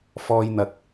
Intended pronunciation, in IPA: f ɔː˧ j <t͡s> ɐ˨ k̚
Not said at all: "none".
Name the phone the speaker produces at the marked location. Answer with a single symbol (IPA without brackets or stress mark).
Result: n̪